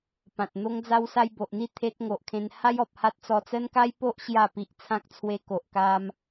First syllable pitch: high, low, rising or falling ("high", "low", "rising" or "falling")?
low